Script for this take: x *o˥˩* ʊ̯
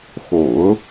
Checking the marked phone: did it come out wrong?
yes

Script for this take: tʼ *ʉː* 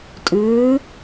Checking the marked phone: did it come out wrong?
no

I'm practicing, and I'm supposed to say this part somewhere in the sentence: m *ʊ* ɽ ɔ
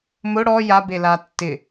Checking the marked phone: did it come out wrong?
no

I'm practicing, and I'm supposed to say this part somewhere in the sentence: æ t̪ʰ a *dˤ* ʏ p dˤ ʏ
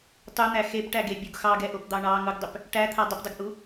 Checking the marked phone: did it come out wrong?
no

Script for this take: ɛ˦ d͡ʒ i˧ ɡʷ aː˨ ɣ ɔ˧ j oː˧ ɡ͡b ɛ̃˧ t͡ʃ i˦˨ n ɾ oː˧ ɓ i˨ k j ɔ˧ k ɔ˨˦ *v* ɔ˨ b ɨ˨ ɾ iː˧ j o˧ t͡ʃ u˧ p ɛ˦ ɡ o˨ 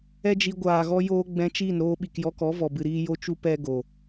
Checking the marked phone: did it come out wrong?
no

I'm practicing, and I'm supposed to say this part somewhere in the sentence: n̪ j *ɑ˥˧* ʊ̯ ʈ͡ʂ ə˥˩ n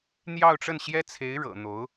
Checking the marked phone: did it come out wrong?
no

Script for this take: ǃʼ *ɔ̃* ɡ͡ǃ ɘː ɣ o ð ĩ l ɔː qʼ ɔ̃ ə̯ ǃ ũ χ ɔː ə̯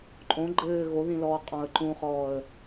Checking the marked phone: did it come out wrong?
yes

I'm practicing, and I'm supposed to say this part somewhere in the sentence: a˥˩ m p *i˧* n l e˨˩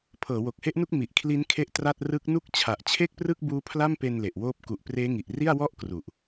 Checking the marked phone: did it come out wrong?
yes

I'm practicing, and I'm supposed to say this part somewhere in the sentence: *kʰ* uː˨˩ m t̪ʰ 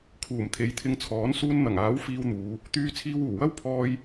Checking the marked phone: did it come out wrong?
no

